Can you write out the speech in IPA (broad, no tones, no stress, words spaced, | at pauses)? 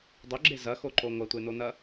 dˤɵɡ͡ǁe zɐxoǃo ŋʷɐtʷenonɐ